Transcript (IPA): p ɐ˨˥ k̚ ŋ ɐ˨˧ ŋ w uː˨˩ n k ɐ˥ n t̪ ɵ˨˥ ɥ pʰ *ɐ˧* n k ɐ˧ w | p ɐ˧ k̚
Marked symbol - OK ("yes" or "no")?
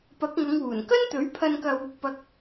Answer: yes